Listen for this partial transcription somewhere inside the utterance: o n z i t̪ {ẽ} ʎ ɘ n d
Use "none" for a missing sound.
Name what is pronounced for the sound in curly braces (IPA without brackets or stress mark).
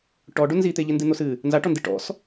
e